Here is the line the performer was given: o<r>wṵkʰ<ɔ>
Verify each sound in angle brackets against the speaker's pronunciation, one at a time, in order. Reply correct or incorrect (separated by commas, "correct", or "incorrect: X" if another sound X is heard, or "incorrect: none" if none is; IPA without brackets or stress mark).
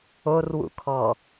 correct, correct